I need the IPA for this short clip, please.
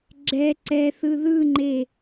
ɡ͡ǁɛ ǀɛθɯ ðɯŋ͡ǃe

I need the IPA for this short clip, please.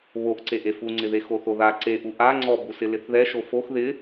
βoʔǀeʔ efuŋ͡ǀɪðe xoθoða ǀeʔu ʔa ŋ͡ǀɔbusɪ lɪθðɛʃo fox ðɪ

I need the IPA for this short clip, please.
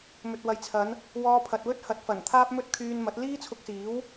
mɵ˨t̚ wɐ˨jt͡sʰɐ˨˧n | wɔː˧pʰɐ˨t̚wɵ˥t̚ hɐ˨t̚fɐ˨˩n t̪ʰaː˥p̚mɵ˥t̚kʰyː˧n mɐ˨˥t̚ liː˥t͡sʰʊ˧k̚siː˨˥w

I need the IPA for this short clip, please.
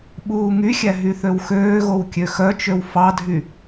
ɓuːŋyxʲæ ɦyθøwxøːɣow kʲøxœt͡ʃøw fɑdʱy

